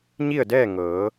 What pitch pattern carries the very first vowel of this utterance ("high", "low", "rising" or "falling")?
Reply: falling